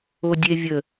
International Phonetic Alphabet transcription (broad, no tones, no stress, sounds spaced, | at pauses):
o dʲ e vʲ ə